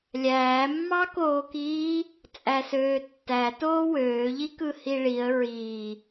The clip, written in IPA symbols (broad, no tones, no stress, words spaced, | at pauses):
lʲæːmːɑkoːkiː | t͡sʼæsøːtːæ toːwøːʎi kɯhiɭiə̯ ɹi